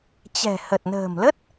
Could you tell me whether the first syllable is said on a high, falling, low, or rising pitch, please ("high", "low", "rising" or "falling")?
low